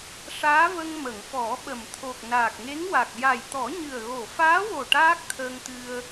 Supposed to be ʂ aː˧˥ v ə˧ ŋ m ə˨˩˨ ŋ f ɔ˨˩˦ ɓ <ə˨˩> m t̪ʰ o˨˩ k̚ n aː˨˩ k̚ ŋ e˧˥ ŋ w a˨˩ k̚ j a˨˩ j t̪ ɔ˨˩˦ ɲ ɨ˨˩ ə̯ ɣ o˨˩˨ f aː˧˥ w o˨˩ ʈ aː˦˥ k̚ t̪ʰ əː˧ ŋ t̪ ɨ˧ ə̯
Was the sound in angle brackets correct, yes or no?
yes